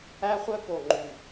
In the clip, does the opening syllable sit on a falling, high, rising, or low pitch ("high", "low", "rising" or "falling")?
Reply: high